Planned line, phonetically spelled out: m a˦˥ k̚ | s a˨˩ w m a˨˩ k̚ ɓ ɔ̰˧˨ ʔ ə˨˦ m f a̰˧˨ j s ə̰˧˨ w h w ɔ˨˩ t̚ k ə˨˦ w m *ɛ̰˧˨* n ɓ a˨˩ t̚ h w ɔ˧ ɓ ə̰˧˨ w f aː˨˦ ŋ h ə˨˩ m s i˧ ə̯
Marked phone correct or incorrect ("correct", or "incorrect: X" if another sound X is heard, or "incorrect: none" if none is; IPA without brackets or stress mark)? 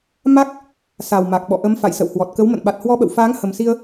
incorrect: ə̰˧˨